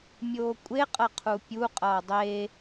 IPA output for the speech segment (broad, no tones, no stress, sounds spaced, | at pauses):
mʲ oː kʷʼ e qʼ ʌ qʰ u pʲ u qʼ ʌː dˤ e